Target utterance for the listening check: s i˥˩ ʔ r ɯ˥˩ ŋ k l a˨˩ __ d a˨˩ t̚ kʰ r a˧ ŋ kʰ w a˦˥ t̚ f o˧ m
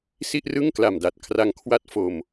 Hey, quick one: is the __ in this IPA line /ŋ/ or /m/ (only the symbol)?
m